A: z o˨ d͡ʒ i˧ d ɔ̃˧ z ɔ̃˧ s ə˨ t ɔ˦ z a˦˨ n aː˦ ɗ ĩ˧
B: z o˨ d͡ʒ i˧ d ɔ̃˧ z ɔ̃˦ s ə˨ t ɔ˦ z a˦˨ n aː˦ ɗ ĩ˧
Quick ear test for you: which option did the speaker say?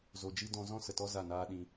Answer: B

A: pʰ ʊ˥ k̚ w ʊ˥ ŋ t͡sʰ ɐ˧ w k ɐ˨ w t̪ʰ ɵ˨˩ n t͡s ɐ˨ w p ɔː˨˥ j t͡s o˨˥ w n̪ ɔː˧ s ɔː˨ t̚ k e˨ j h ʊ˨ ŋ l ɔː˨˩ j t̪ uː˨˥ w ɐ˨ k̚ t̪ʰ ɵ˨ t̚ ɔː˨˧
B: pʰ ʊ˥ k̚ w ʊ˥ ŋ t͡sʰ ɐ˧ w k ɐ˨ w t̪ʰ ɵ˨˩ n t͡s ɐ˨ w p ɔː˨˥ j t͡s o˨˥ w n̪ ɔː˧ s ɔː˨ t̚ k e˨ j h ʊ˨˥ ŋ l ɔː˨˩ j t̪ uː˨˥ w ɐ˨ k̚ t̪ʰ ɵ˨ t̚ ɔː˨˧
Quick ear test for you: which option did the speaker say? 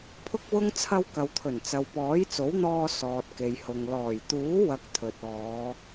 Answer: A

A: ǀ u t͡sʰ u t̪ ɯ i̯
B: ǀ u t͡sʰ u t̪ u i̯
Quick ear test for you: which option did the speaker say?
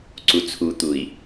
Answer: B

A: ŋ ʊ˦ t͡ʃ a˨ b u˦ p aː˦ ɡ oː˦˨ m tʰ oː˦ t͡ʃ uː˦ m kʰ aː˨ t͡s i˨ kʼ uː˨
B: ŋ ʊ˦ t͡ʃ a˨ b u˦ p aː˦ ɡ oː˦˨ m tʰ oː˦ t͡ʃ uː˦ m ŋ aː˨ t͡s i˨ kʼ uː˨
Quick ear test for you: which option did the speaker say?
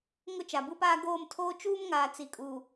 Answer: B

